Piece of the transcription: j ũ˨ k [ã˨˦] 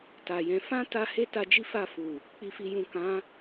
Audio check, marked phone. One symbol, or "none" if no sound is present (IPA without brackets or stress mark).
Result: ã˨˦